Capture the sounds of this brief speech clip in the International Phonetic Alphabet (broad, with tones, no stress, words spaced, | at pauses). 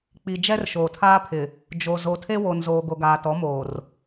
k͡pi˨d͡ʒɛ˦r ʃoː˨tʰaː˦pʰɪ˨ | d͡ʒo˨ zo˨tʰe˦wo˨nzoː˨ ɡo˨ɡaː˨tɔ˨˦ moː˨r